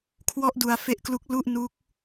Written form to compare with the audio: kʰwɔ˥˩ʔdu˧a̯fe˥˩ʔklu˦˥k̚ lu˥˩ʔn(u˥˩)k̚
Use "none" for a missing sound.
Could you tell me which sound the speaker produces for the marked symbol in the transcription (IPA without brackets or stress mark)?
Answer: u˦˥